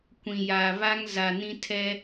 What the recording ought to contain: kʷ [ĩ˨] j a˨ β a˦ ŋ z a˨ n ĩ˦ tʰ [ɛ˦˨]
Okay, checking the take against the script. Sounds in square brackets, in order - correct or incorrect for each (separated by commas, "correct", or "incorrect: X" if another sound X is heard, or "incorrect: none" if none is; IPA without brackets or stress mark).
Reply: correct, incorrect: ɛ˦